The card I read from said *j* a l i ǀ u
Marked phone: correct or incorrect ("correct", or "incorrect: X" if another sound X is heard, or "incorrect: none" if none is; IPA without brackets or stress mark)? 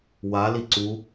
incorrect: w